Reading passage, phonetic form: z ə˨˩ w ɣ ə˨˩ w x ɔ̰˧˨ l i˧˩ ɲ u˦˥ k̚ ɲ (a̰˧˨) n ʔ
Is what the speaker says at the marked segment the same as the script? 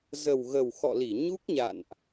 yes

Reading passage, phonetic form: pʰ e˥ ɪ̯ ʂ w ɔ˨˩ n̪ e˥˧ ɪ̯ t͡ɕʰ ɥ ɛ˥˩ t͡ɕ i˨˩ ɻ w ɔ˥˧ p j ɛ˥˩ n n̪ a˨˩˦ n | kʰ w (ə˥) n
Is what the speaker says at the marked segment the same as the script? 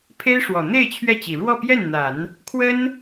yes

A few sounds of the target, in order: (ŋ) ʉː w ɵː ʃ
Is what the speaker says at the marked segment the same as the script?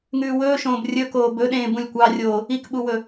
yes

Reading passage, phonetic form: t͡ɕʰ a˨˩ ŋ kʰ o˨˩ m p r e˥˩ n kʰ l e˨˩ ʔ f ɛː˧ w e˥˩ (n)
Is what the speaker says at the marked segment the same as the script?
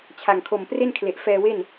yes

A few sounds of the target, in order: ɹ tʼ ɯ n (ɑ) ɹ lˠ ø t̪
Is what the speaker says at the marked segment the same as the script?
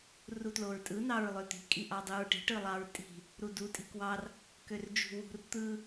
yes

